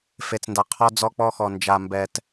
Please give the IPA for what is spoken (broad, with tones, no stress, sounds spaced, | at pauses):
f e˨ t͡s n d a˨ qʰ ɔ˦ d͡z ɔ˦ k͡p ɔ˦ x ɔ˨ n d͡ʒ a˨ m b ɛ˨ t